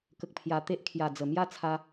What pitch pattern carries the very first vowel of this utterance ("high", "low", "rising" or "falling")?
low